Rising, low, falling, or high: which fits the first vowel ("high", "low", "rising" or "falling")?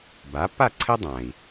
rising